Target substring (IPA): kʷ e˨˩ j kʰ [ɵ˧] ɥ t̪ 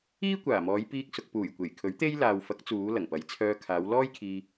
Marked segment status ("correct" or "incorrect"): incorrect